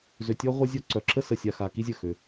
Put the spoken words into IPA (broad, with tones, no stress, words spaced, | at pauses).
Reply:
zø˨tʲɔ˧ʁʷa˧zʲɔ˧ ǀœ˨ǁə˦ sə˨ sʲa˨xa˨ ki˦zʲə˦˨xø˧